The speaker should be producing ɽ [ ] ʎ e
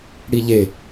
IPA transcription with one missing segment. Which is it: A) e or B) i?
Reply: B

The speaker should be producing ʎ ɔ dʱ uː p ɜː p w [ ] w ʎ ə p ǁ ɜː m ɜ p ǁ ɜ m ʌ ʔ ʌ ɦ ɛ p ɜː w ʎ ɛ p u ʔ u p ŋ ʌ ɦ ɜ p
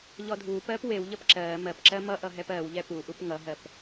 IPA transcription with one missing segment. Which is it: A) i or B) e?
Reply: B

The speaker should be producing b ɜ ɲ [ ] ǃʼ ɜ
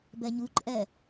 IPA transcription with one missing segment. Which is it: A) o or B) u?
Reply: B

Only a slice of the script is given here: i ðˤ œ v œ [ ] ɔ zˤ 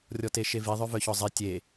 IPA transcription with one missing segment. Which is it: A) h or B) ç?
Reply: B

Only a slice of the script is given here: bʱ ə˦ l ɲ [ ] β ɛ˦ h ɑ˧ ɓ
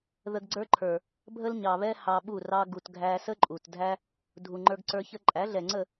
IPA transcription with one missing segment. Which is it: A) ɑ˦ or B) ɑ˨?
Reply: B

